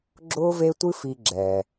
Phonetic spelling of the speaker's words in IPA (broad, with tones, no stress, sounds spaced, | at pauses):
ɡ͡ǁ ʊː˦ v e˦ tʷ ɨ˦ f i˦ ɡ͡ǁ ɛː˧